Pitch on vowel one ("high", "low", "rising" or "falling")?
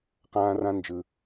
high